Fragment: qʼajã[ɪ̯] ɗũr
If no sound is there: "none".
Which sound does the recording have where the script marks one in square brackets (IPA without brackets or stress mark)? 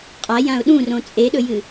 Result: ʊ̯